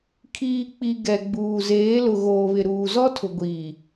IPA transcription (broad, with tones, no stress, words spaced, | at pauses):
kʰiː˨k͡pi˨ ɡɛ˨ɡ͡buː˨ zeː˨˦ lʊ˨ɣoː˨βɪ˨ ɾuː˨zɔ˦tʰʊ˨ ɡʷiː˨